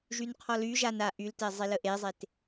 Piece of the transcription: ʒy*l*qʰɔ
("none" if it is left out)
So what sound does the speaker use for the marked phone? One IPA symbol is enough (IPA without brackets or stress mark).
n